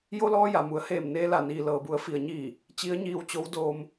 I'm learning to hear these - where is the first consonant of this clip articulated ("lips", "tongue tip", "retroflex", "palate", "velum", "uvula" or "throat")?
palate